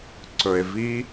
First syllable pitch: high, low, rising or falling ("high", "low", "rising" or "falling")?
low